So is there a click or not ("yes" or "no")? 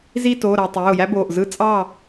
no